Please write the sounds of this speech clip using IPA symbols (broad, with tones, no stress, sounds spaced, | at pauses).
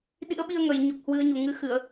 ɗ ḭ˧˥ ə̯ ɓ i˧ ə̯ ŋ ə˨˩ j ɲ o˨˩ k̚ h w ɨ˨˦ ə̯ ɲ u˨˩ ŋ ɨ˨˦ x ɨ˧˩˨ ə̯